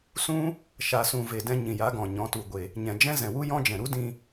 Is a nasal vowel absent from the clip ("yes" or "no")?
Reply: no